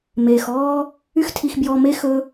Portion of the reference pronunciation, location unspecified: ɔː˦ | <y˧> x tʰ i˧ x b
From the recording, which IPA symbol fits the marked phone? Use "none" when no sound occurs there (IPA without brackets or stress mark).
y˦